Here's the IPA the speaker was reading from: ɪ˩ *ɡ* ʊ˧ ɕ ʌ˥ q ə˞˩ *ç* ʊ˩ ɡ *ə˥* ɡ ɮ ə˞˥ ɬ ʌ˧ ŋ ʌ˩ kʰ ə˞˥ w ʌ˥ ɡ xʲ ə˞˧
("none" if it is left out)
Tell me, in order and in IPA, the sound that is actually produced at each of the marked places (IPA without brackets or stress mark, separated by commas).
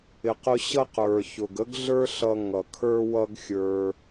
q, ç, ə˥